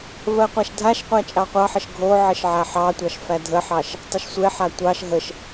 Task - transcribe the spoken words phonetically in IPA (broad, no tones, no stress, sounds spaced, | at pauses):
v ɜ qʷ æ ʃ dʱ a ʃ qʷ æ t͡ʃʼ ɑ qʷ ɑ ħ ə ʃ ɡʱ o ʕ ə ʃ ʕ æ ħ ɑ tʷ ɑ ʃ f æ dʱ ə ħ ɑ ʃ | tˤ ə ʃ sʷ e ħ a tʷ ɑ ʃ ɦ ə ʃ